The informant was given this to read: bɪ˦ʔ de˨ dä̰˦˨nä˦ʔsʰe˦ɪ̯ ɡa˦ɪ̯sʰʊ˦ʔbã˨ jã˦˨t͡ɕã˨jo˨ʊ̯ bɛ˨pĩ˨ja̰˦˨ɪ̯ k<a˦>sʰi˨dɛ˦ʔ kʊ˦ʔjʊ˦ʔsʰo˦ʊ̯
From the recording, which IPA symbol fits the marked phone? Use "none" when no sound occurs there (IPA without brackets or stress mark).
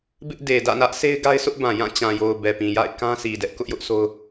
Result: ã˦